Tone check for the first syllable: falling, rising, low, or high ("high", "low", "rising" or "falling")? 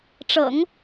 low